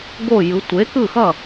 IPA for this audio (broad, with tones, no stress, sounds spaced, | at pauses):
ɡ o˥˨ j ɯ˨˥ tʷ e˨˥ k ɯ˥˨ x ʌ˥˨